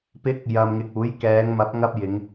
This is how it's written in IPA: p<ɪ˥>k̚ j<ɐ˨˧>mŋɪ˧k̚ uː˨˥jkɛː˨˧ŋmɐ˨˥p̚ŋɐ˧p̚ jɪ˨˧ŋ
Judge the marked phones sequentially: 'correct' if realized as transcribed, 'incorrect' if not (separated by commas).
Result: incorrect, incorrect